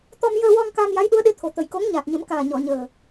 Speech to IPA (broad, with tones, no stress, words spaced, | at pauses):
t̪ɔ˧mjəː˧wɔ˧ŋ kaː˧mja˧˥jɗu˧˥ə̯ɗe˧˥ t̪ʰo˨˩t̪ə˨˩jko˧˥ŋ ɲaː˨˩t̚ɲə˨˩˦m kaː˨˩ɲɔ˨˩˨ɲəː˨˩